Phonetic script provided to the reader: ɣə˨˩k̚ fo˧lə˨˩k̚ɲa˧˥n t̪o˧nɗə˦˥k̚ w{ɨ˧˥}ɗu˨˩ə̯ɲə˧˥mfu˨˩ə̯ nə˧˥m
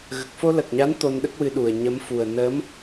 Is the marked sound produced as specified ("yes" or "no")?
no